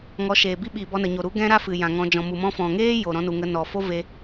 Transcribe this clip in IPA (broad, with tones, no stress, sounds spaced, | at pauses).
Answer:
ŋ ɔ˨˦ ʃ eː˨ b i˦ ɓ iː˨ b ɔ˧ n ə˨ ɲ o˨ ɾ u˨˦ ɡ ɛ̃˦ ɾ a˦ f ɨ˨ j ã˨ ŋ ɔ̃˧ d͡ʒ ɔ̃˨ m u˨ m ɔ̃˧ f ɔ̃˨ ŋ eː˦ j o˨ ɾ ɔ̃˧ n u˨ ŋ ə˧ n ɔ˨ f o˦ v e˧